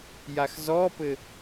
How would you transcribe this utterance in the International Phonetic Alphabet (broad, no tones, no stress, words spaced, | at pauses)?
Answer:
jaxzɔpɘ